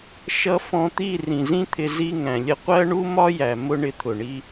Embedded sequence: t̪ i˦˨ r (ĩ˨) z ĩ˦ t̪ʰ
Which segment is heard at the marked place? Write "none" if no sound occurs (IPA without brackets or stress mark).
ĩ˨